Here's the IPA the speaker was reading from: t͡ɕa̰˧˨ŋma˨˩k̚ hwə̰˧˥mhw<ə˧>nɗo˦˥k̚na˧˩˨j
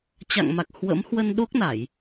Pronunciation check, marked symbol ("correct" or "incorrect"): correct